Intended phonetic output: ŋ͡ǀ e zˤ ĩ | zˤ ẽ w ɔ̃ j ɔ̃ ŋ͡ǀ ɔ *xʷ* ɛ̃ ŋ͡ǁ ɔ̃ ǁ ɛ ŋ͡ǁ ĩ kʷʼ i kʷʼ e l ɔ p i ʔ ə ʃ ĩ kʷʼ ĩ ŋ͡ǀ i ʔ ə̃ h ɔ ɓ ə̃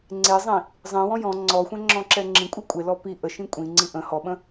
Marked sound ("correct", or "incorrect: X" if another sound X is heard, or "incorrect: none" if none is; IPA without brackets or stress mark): correct